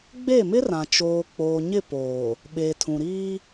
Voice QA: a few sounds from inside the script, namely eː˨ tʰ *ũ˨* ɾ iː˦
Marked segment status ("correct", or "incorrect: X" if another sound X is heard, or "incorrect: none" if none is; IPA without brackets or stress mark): correct